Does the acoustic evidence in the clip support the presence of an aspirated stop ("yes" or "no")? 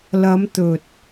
no